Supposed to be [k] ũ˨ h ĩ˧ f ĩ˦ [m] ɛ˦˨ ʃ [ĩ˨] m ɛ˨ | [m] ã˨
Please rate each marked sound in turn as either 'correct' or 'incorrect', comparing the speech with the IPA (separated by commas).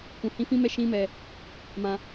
correct, correct, incorrect, correct